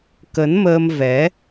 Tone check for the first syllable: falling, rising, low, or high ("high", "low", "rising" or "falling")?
rising